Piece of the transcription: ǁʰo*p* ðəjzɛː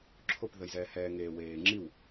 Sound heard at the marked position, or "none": p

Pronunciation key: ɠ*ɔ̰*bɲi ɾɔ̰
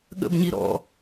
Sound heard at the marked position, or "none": ə̰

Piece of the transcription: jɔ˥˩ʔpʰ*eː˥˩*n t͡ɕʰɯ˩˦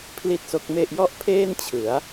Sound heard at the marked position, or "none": eː˥˩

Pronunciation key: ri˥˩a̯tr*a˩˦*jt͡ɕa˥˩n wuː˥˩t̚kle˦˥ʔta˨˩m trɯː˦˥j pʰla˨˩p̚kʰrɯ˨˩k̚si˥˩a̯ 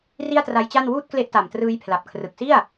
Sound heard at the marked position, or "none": a˦˥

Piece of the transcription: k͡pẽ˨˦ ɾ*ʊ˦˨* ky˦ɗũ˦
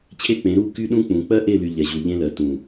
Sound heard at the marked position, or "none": u˦˨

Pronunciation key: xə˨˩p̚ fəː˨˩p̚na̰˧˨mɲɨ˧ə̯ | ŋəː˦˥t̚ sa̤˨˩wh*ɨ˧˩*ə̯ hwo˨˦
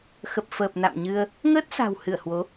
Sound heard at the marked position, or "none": ɨ˧˩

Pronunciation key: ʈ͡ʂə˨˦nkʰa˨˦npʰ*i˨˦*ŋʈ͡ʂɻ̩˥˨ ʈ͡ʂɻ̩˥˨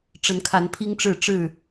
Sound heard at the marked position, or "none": i˦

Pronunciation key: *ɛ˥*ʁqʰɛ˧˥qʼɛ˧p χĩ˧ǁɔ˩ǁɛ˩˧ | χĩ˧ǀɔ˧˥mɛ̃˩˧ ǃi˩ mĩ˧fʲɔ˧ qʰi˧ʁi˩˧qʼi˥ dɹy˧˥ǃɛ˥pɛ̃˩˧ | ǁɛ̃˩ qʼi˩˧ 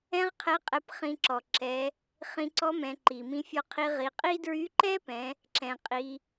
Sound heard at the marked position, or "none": ɛ̃˥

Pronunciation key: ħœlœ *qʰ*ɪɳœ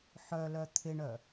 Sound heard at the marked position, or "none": t̪ʰ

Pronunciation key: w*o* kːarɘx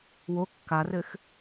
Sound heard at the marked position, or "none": o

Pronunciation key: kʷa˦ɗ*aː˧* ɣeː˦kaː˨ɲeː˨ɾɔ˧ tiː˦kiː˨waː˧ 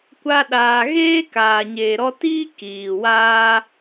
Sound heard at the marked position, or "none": aː˧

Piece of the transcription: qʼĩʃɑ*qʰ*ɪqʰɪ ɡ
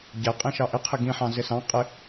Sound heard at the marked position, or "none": ʔ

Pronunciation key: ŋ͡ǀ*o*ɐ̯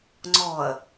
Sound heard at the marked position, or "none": ɔ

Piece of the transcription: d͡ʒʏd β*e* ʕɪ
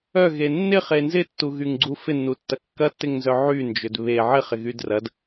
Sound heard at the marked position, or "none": e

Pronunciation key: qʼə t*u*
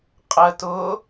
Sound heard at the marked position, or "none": ʊ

